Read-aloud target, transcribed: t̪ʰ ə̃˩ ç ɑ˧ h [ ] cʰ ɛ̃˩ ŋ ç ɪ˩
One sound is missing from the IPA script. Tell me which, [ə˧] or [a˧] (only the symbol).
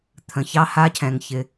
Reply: a˧